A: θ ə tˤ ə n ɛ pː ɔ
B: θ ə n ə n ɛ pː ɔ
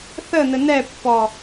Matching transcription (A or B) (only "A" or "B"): B